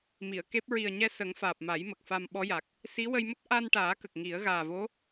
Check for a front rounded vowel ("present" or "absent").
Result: absent